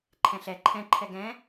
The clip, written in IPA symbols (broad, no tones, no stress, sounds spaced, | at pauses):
ǃʰ ɛ̃ ɬ ɛ ǃʰ ɛ̃ ǃʰ ɛ ɡ ɛ̃